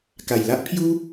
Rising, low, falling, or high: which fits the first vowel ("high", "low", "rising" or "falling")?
low